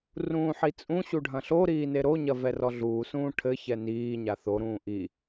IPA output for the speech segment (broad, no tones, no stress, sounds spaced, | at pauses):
r ũː ħ i t͡sʼ ũ ɕ u ɖʱ ɐ̃ ɬ o ɾ iː n e ɾ o ɲ ɐ v ɛ r ɔ ɮ uː s ũː ʈʰ ɘ ç ɛ n iː ɲ a θ o ɾ ũː ʔ i